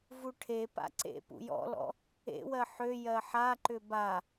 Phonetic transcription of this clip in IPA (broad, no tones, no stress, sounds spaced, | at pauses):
v u ʈʰ e p a̰ ǀ ḛ p ṵ j ɔ̰ l ɔ̰ | ḛ w ɜ ħ ø j ɜ ħ a ǃ ʏ b a